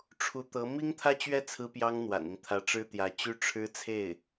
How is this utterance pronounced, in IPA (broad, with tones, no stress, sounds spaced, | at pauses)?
ʈ͡ʂʰ u˧˥ t̪ ɤ˧˥ m i˥ ŋ t̪ʰ ä˥˧ t͡ɕ ɥ ɛ˥˩ t͡sʰ ɹ̩˥ p j ɑ˥ ŋ n̪ w a̰˨˩ n i˦ ŋ t̪ʰ ä˧˥ ʈ͡ʂ ɻ̩˥ t̪ j ä˧˥ t͡ɕ y˥ ʈ͡ʂʰ ɻ̩˥ t͡sʰ e˥˩ ɪ̯